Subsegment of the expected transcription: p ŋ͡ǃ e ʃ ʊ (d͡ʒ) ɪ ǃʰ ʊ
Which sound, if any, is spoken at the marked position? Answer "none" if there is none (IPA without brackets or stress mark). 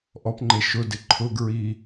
d